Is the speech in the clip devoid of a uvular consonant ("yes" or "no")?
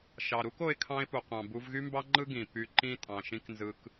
no